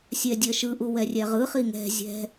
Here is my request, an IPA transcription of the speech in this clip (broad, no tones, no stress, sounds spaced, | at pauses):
sʲ ɛ dʲ ɜ ʃ ɯ ʔ u w ɛ rʲ ɛ ʁ ɯ χ i ŋ ɛ̤ zʲ ɛ̤